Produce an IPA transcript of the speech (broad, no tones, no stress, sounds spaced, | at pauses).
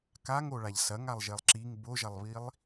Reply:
k a ŋ o ɭ a ʎ s ɐ ŋ a lˠ ʒ e lˠ ǁ i ŋ b o ʒ ɐ lˠ β i lˠ